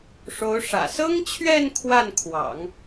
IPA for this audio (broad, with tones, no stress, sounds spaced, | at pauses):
ʂ o˧˥ ʊ̯ ʂ ä̰˨˩ s ɤ˥ ŋ t͡ɕʰ ɥ ɛ˥˧ n kʰ w a˥˩ n kʰ w ɑ̰˨˩˦ ŋ